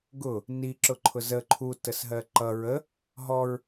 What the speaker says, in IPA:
ɡʊ | ni ǁʊǃʰʊzə ǃʰu təsɦɜǃʌ ɹə | ɦɔɹ

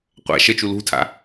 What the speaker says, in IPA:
qʷa̰ ʃət͡ʃu lṳtʰa̰

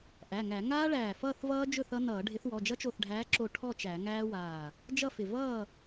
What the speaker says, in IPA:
ʔæ˩˧˩ŋæ˧˩˧ ŋaː˦˥ɭæː˧˩ fʌː˥˨θvʌː˦˥ d͡ʒɵ˥˨θʌ˦˥nʌː˧˩˧ ɖʱɪ˨˦θwɔ˩˧˩d͡ʒʌ˦˥ t͡ʃo˧˩θɖʱæː˨˦ǁo˧˩ ʈʰɔ˥˨t͡ʃæ˧˩˧ŋæː˦˥waː˧˩ | d͡ʒʌ˥˨fɪ˧˩ vʌː˥˨

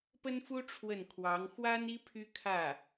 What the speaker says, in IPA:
pə˥nfu˥ ʈ͡ʂʰwə˥˩nkʰwɑ˧˥ŋ xwa˥ni˥ pʰy˥kʰä˥˩

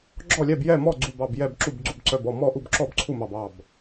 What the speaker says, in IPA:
ɡ͡ǁɔ˥˩lʲɛ˥˩b jɛ˥˩mɔ˥˩ ɡ͡ǀu˧˩bɑ˧˩b jɛ˧˩bǁu˧˩b ɡ͡ǀu˧˩b ǀœ˧˩bɔ˥˩ mɔ˥˩ʔu˥˩b ǁɔ˥˩b ǀʰu˥˩mɑ˧˩b ɑ˧˩b

